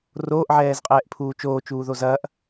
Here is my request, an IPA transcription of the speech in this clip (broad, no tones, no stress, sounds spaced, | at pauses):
r oː ʔ ʕ ɛː z qʼ ɛː ʔ pʰ uː t͡ʃ oː t͡ʃ uː ð o z ɐ ʔ